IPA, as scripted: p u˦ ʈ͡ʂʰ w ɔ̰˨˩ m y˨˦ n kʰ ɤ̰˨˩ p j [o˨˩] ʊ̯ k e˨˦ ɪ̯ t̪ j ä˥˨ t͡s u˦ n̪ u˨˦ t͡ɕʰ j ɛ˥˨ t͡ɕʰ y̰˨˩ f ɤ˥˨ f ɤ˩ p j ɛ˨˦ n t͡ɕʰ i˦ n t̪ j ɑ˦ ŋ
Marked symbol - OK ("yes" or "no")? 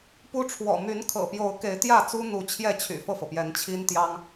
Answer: no